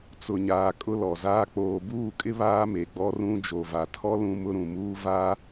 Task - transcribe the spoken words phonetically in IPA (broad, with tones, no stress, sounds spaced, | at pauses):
t͡s ʊ˨ ɲ aː˨ kʼ ʊ˦ l ɔ˨ z aː˦ k͡p oː˨ b uː˦˨ kʼ ɪ˦ β aː˦ m e˨ ɡ͡b ɔ˦ r ũ˦ d͡ʒ o˨ v a˨ tʰ ɔ˦ l ũ˦ m ʊ˦ ɾ ũ˨ m uː˦ v a˦